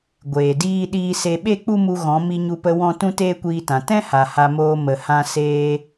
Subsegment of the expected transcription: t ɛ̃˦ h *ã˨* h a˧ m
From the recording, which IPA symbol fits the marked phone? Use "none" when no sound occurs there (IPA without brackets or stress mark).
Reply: a˨